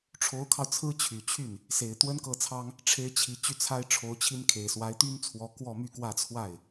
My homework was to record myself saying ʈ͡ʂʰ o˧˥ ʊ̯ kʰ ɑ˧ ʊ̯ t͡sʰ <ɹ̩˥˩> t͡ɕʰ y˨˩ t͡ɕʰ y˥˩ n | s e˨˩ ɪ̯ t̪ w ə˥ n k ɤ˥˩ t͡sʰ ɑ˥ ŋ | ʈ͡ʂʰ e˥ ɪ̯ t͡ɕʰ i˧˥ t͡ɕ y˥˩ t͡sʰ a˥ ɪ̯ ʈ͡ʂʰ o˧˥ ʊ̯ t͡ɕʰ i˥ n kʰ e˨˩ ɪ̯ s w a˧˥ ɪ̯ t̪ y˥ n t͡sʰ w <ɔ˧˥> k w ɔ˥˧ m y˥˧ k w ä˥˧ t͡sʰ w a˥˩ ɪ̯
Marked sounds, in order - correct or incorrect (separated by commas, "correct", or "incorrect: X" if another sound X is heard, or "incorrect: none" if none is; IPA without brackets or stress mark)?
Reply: incorrect: ɹ̩˥, correct